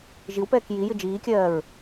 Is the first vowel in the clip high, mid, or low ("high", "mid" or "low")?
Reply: high